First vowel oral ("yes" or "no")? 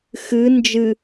yes